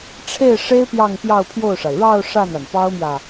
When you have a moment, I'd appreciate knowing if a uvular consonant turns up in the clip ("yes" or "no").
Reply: no